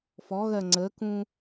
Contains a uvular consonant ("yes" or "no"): no